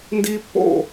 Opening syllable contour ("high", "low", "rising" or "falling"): high